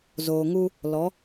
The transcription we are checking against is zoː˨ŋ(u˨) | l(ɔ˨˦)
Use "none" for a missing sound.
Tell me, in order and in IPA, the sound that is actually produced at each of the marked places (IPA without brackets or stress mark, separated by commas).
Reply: u˦, ɔ˨˦